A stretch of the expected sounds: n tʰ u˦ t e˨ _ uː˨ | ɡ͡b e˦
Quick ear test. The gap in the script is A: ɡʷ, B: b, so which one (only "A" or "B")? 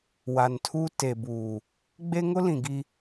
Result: B